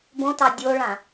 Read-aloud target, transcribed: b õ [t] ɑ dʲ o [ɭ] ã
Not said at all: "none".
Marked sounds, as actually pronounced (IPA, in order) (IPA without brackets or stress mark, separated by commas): t, ɭ